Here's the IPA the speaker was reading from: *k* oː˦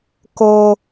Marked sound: correct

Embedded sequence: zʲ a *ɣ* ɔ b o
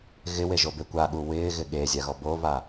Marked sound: correct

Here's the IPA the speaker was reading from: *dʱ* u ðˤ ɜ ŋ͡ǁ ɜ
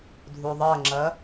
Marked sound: correct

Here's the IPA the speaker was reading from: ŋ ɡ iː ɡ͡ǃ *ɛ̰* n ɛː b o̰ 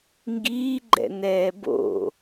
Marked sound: correct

